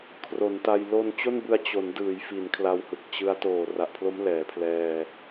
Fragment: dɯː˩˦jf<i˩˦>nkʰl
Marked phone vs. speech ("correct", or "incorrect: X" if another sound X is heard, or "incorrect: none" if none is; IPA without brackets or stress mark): correct